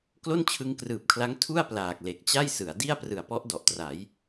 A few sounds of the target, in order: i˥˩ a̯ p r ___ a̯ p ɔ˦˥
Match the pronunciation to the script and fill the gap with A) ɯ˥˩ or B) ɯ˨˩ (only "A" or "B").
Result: B